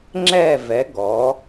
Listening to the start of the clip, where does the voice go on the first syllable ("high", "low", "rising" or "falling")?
falling